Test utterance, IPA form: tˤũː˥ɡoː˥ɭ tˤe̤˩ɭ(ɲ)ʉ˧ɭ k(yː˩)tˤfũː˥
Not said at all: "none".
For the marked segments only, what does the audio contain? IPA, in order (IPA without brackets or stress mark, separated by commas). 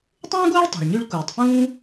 ɲ, uː˩